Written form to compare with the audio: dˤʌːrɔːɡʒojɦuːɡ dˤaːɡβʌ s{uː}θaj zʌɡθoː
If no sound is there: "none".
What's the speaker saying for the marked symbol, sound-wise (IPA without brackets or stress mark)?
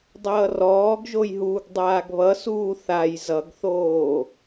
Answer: uː